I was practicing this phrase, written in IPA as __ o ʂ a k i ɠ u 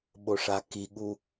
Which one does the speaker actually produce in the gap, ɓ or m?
ɓ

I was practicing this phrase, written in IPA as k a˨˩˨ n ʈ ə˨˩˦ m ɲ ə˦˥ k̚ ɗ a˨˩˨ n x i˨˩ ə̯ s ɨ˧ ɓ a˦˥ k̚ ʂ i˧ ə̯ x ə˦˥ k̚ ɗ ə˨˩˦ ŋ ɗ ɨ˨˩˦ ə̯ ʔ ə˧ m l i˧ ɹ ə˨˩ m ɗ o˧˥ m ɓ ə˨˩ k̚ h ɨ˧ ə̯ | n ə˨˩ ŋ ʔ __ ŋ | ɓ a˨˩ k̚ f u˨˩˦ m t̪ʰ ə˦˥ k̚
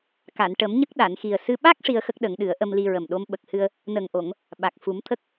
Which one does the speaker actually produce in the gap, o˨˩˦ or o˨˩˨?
o˨˩˨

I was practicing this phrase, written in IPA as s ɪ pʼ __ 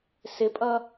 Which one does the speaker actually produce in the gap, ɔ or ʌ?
ʌ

